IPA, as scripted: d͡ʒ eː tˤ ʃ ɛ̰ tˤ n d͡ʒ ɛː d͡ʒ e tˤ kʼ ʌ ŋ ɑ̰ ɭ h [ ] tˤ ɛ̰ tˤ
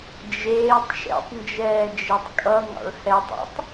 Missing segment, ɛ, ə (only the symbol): ɛ